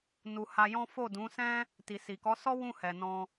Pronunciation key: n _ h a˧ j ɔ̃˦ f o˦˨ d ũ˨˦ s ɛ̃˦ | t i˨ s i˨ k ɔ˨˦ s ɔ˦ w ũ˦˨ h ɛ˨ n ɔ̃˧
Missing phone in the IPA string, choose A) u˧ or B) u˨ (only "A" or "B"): B